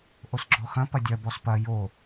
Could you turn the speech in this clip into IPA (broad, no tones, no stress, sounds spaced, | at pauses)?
ʔ o s ɡ͡ǁ ɔ x ɐ̃ p ɐ dʲ ɐ b ɔ s p ɐ j o